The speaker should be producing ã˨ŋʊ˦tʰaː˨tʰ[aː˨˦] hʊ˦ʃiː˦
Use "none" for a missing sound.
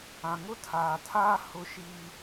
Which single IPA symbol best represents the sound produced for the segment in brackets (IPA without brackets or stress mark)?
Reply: aː˦